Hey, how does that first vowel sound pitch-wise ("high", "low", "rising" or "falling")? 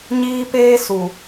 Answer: high